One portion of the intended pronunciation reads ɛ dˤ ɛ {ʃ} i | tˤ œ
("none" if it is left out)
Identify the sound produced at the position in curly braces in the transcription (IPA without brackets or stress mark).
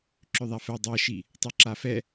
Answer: ʃ